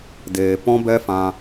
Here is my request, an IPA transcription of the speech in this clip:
d eː˨ p ɔ̃˦ b ɛ˦ f ã˧

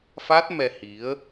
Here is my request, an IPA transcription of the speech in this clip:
f a˦˥ t̚ m ɛ˧ h i˨˦ ə̯

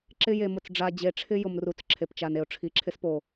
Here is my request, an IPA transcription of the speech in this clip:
ǁ ɪ˦ j e˨ m ʊ˨ t͡s ɖ͡ʐ a˨ d͡ʑ e˨ ʈ͡ʂʰ ɪ˦ j ʊ˨ m r u˨ t͡s ǁʰ e˨ p t͡ʃ a˨ n e˨ ʊ̯ ʈ͡ʂʰ i˨ ǁʰ ɪ˦ s p o˨

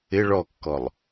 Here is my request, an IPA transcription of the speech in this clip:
ɪ ɭ ɔ kː ɔ lˠ

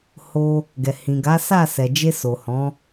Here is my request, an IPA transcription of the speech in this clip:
h o˧ | ɡ ɛ˨ h ĩ˨ ɡ a˨˦ s a˦˨ s ɛ˨ d͡ʒ e˧ s o˨ h ɔ̃˨˦

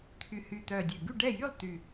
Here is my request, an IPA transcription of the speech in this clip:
t̪ʰ y˨˩ h y˨˩ t̪ œ˨˩ dʲ ø˨˩ ɡ y˥˨ ɖ ɛ˥˨ j y˥˨ lˠ t̪ y˨˩

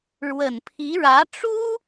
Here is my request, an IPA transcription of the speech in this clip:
ɻ w ə˨˩ n pʰ i˧˥ ɻ ä˧˥ ʈ͡ʂ u˥

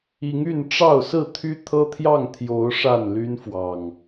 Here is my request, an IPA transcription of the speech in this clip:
i˨˦ ŋ y˥˨ n ʈ͡ʂ ɑ˥˨ ʊ̯ s ɹ̩˥˨ t̪ʰ y˦ t̪ʰ ɤ˦ t̪ʰ j ɑ˥˨ ŋ t̪ʰ j o˨˦ ʊ̯ ʂ a˥˨ n l y˦ n f w ɑ˨˩ ŋ

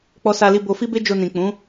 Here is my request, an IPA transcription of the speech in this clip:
k͡p ɔ˧ s a˧ l i˧ b o˧ f i˦ b e˦ d͡ʒ o˧ n ĩ˨ k͡p ũ˨˦

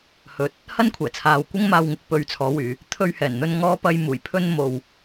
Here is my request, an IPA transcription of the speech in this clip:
h ɵ˨˥ t̚ | h ɐ˥ n kʷʰ ɛː˨˩ t͡sʰ aː˨ w kʷ ɪ˥ ŋ m aː˧ w ŋ ɪ˨˥ k̚ p ɵ˧ ɥ t͡sʰ ɔː˨˥ w yː˨˧ | t̪ʰ ɵ˧ ɥ h ɛː˨˩ n n̪ ɵ˧ n ŋ ɔː˧ p ɐ˧ j m uː˨˩ j pʰ ɵ˧ n m o˨ w

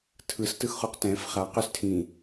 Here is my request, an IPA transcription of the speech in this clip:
tʰ ɯ s t ɯ x χ u q t ɛ̃ f χ a q ʏ s tʰ ĩ

